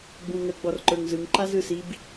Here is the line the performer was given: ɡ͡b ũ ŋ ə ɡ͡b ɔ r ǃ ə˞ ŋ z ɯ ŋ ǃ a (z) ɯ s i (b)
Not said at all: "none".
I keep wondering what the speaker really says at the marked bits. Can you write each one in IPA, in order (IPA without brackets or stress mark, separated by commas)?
z, b